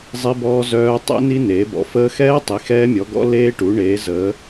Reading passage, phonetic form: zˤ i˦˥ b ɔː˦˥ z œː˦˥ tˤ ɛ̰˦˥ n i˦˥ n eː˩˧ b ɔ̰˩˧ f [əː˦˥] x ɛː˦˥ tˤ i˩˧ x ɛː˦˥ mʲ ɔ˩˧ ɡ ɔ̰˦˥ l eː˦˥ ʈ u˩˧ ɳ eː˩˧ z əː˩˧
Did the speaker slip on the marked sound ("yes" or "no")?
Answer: no